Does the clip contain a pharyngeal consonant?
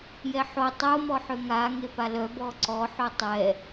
yes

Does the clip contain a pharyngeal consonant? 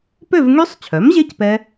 no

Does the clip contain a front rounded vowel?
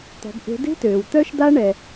yes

